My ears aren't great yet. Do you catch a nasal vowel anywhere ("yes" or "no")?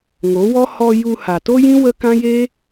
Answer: yes